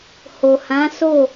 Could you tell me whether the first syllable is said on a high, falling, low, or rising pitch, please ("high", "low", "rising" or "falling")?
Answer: low